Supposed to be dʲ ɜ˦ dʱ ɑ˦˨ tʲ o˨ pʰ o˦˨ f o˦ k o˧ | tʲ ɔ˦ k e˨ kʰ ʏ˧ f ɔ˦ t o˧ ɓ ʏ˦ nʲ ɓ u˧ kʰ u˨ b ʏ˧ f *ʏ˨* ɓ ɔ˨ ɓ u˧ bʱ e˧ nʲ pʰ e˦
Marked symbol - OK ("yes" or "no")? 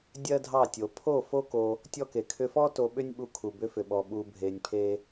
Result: yes